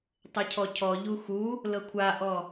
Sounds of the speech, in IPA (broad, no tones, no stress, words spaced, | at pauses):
tˤɛcʰɔcʰɔ ʎuxu | lɤkʷʰaʔɔ